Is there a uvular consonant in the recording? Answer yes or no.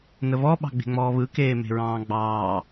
no